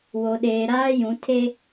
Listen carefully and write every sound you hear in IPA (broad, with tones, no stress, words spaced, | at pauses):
wo˨ɗeː˨ɾaː˦jũ˨˦ tʰe˦